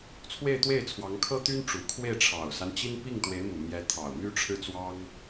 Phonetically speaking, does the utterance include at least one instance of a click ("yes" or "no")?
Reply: no